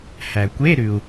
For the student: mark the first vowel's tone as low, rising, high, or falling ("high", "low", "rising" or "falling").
low